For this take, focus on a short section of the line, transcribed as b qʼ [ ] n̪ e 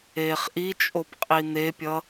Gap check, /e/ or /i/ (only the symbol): i